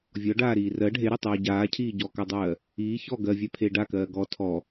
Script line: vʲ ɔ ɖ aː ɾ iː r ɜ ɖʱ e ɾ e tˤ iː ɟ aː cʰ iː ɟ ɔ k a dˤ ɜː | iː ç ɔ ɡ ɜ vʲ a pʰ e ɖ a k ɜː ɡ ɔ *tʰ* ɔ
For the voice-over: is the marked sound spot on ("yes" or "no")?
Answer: yes